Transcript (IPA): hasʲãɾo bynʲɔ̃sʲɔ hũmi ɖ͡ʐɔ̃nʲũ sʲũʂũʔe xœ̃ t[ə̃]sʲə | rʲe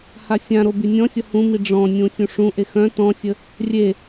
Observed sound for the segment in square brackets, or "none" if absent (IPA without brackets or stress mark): ɔ̃